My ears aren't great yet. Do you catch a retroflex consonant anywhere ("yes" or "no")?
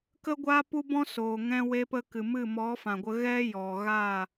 no